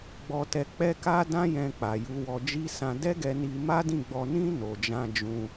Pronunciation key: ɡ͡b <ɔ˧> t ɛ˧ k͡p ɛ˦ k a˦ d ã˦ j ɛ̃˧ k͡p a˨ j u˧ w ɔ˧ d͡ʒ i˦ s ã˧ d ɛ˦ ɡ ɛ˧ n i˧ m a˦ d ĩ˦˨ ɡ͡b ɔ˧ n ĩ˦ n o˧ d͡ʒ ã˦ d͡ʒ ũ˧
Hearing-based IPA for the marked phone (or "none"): ɔ˧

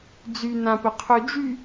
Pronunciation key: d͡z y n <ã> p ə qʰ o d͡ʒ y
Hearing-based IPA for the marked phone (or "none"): ã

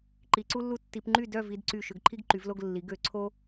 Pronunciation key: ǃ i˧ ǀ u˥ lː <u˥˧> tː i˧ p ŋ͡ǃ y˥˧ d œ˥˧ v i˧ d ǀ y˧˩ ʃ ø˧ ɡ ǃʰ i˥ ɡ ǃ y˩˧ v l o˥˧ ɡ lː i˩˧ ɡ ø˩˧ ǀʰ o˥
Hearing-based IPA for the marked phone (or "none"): u˥˧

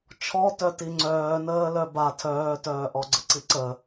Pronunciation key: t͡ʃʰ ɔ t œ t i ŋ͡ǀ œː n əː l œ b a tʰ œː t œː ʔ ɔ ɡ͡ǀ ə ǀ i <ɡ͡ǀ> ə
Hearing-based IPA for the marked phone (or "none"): ǀ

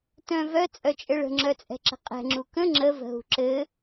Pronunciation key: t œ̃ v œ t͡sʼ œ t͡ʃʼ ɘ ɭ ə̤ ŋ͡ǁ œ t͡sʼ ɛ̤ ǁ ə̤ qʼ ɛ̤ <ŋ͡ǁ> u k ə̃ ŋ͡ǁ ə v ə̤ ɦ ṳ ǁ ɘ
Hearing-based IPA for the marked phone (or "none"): ŋ͡ǁ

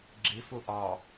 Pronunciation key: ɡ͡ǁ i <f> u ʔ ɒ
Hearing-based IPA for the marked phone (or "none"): f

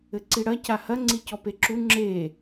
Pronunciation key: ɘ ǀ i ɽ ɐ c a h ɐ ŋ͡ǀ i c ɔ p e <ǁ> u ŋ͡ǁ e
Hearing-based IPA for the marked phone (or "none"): ǁ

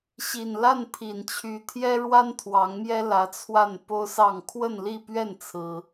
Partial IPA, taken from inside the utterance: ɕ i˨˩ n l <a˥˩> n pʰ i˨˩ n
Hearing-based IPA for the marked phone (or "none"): a˥˩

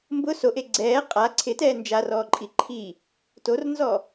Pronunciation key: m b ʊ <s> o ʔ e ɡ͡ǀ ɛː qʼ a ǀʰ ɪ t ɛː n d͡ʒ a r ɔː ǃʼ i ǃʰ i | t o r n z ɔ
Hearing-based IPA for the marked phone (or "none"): s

